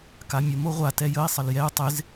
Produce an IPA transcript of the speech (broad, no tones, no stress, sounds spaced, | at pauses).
k a mʲ ə m o ʁʷ a t ɛ j ə i̯ sˤ ə l j ɛ u̯ tˤ ɪ z